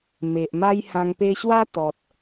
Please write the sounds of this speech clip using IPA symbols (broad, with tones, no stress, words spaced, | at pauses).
me˨ʔma˦jhã˧ŋ pe˧ɕwa˦ t̪ɔ˨t̚